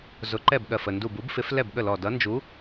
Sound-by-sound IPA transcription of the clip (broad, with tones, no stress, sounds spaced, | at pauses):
z ʊ˨˥ ǃ ɛ˥˩ b ɠ ɜ˧˩ f ə˧˩ n d u˧˩ b u˨˥ b f ɪ˨˥ f l ɛ˥˩ b ɠ ə˥˩ l ɔ˧˩ d ʌ˨˥ n d͡ʒ u˨˥